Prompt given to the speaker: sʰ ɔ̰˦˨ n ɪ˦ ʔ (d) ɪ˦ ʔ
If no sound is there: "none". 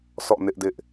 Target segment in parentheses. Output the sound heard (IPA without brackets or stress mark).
d